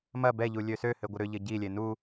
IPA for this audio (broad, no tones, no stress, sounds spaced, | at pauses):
m ɐ b ɛ ʎ u lʲ ø s ø h ɘ ɡʷ ə ɾ ʏ ʎ ɘ ɟ i lʲ e n u